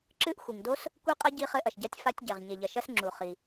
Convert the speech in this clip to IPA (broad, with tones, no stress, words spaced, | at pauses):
ǁɨ˦˥ʔxʷi˩ŋdo˦˥s | kʷi˦˥qʼɐ˦˥ ɟi˦˥χɘ˦˥ʔɐ˩ʃɟa˦˥tʲ fa˦˥tʲɟɛ˩ʁ ɲe˩ʎɐ˩ʃɐ˦˥sŋ͡ǁu˩ χi˩